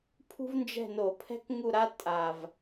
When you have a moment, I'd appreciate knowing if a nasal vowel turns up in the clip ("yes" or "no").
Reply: no